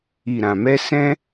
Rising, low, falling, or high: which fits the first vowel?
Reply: low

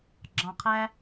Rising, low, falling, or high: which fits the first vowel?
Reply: low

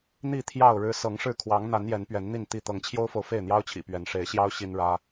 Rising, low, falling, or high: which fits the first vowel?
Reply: falling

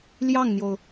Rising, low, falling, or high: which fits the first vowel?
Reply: falling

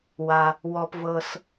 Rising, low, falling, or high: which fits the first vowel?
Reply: low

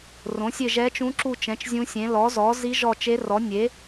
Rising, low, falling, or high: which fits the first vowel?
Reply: rising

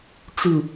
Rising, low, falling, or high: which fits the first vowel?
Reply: falling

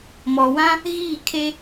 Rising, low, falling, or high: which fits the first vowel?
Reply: low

